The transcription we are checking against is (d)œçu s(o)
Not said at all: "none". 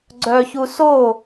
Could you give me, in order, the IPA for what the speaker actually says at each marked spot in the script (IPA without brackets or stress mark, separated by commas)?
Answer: ɡ͡ǀ, o